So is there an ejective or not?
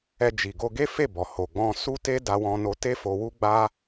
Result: no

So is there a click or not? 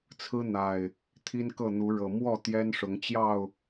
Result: no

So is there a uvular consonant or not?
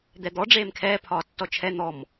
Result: no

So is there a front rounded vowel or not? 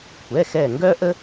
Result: yes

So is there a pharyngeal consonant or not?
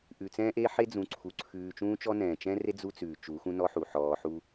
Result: yes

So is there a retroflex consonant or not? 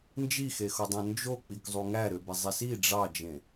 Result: yes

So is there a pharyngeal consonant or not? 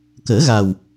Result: no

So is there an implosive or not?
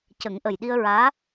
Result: yes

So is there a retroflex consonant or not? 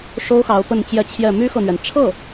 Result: yes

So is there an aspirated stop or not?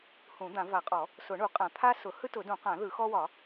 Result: yes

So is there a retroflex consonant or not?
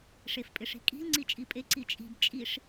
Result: yes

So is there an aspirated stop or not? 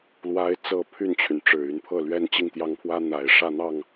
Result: yes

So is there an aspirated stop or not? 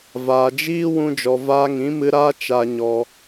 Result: no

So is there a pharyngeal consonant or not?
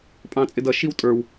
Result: no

